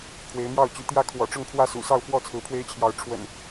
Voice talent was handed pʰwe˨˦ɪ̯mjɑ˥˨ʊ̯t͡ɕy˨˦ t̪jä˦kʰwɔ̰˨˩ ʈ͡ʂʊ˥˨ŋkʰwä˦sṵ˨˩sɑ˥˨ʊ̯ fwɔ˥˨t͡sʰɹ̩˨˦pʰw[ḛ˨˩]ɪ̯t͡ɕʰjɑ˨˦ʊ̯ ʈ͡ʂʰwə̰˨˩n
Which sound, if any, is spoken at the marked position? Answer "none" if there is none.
e˦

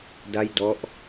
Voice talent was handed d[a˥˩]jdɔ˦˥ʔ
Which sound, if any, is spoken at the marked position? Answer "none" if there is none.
a˥˩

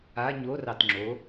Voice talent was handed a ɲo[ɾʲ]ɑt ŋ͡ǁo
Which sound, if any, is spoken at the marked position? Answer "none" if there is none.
r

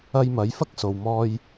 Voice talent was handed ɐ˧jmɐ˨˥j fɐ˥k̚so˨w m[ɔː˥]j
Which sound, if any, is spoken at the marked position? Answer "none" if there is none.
ɔː˧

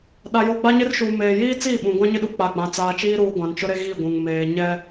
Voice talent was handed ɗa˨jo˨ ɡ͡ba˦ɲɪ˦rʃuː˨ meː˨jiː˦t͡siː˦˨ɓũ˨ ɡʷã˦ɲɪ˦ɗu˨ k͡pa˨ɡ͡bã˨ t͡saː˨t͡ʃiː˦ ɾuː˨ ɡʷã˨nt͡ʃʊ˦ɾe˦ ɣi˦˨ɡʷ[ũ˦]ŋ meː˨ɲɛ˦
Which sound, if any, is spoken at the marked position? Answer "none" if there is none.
ũ˨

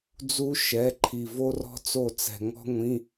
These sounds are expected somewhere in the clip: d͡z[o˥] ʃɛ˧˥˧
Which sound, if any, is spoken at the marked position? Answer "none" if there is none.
u˥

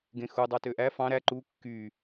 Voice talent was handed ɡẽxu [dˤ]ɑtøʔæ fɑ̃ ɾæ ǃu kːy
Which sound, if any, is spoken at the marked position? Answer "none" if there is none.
dˤ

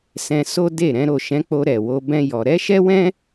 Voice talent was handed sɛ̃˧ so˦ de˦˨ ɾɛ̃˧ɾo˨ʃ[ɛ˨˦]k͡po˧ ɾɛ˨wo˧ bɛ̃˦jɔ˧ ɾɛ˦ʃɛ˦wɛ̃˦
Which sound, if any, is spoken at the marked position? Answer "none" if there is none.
ɛ̃˨˦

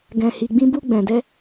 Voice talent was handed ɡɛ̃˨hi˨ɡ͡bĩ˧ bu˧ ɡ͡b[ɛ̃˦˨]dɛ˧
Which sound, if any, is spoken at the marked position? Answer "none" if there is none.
ɛ̃˨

